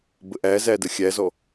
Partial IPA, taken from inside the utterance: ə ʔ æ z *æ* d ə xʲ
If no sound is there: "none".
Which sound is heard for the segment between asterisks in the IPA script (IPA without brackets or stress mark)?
æ